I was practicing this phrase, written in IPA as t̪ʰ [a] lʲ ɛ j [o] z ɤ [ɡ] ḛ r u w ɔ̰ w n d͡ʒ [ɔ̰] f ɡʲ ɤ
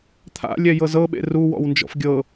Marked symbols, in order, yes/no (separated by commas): no, no, no, yes